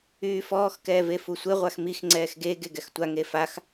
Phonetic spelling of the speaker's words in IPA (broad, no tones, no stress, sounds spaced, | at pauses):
yː f ɔː x k ɛː v e f u sʷ e ʁʷ a x m i x ŋ͡ǀ ɛː x ɡ e ɡ e ɡ ɛ x tʷ a ŋ e f a x